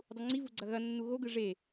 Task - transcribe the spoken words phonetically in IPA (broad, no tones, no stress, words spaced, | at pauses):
dˤuŋ͡ǀivu ɡ͡ǀɐɣɐnːu ɣoɡɯ ʐe